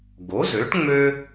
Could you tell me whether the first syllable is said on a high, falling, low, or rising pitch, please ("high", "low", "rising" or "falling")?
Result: rising